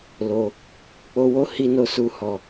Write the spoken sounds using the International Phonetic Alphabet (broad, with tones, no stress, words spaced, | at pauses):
lo˧ | k͡po˧wo˦ hi˧no˧su˧ hɔ˧